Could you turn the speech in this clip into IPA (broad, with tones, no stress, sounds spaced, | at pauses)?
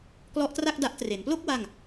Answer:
k l ɔ˦˥ ʔ t r a˥˩ k̚ d a˦˥ ʔ t r e˩˦ n p l o˥˩ k̚ w a˥˩ ŋ